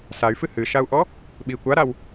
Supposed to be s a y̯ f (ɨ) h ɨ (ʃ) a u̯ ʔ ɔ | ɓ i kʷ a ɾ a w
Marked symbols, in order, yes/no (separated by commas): yes, yes